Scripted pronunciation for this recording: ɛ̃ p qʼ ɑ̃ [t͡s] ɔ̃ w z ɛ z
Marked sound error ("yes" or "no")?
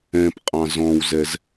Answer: yes